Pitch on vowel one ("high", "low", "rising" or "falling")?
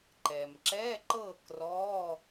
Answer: low